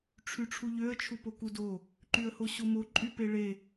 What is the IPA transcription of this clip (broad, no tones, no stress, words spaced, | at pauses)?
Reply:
ʈ͡ʂʰyʈ͡ʂʰuʎøə̯ t͡ʃʰupokudo | ǃyə̯hoɕomo ǃʼypeɭe